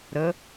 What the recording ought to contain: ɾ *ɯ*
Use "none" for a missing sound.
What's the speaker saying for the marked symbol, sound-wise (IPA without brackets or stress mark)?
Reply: ə